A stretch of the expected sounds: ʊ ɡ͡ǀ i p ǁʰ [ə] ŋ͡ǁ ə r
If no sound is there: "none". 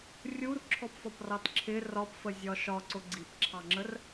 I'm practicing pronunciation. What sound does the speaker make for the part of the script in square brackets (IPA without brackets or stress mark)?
ɑ